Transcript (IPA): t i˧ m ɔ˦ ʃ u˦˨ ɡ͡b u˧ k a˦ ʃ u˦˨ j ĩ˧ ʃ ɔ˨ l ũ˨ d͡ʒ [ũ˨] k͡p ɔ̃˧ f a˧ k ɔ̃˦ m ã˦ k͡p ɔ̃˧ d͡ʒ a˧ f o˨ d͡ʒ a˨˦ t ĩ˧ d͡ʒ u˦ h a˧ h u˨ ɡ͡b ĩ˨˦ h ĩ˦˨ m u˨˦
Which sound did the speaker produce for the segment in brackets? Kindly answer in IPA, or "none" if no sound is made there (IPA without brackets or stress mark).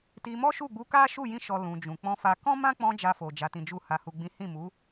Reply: ũ˨